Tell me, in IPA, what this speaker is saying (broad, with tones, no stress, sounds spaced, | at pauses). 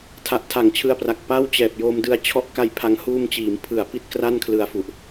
tʰ a˨˩ ʔ tʰ a˨˩ ŋ t͡ɕʰ ɯ˧ a̯ p r a˨˩ k̚ p a˥˩ w t͡ɕ ɛː˨˩ p̚ j o˧ m d ɯ˧ a̯ t͡ɕʰ ɔ˦˥ ʔ k a˧ j pʰ a˧ ŋ h uː˧ m t͡ɕ iː˩˦ m pʰ ɯ˨˩ a̯ p i˥˩ t̚ k r a˥˩ n kʰ l ɯ˧ a̯ f u˨˩ ʔ